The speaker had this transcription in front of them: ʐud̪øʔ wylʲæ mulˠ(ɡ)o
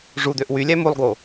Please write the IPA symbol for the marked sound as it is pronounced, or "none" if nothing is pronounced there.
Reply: ɡ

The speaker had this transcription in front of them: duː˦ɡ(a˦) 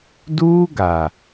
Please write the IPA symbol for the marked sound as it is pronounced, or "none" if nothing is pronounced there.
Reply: a˨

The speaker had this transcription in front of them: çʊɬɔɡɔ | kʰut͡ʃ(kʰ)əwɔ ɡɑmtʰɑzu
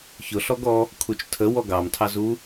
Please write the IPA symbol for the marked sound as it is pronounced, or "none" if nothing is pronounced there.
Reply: tʰ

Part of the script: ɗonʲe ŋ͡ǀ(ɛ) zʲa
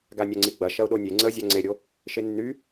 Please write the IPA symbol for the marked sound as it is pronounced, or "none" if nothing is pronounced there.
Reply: ə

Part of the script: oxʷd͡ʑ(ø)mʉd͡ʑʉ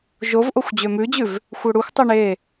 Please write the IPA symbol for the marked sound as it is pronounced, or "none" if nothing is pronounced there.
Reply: ø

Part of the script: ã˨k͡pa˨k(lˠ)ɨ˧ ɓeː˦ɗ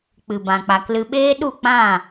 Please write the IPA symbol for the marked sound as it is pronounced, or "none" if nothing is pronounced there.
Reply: l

